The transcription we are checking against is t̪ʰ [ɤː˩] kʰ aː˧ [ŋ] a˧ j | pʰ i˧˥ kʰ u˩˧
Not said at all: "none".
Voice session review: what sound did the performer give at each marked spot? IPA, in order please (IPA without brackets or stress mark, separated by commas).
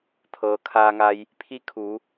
ɤː˩, ŋ